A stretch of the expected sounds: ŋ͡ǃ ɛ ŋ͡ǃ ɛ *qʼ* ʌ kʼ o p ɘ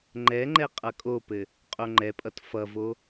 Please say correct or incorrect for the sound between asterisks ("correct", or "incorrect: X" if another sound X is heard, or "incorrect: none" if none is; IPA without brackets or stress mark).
correct